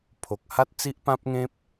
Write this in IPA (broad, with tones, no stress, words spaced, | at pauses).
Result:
pʰo˨k̚ha˦t̚t͡si˦ʔ pã˦p̚ŋẽ˦p̚